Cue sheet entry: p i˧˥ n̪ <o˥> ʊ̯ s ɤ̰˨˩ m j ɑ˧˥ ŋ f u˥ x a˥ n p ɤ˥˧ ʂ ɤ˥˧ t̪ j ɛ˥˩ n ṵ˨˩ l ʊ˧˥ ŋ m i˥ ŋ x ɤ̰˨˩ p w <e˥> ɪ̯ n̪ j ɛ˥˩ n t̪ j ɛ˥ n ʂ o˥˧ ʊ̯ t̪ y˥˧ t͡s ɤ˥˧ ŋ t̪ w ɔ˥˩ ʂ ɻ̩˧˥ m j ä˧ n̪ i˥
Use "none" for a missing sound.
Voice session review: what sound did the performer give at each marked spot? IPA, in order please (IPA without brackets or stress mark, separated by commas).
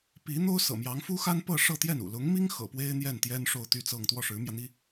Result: o˥, e˥